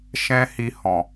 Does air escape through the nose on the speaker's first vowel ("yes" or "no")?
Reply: yes